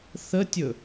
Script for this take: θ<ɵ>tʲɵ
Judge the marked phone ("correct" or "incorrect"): incorrect